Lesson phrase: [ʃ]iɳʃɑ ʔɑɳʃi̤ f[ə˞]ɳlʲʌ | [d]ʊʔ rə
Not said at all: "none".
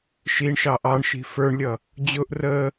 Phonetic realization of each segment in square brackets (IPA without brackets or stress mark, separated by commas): ʃ, ə˞, d͡ʑ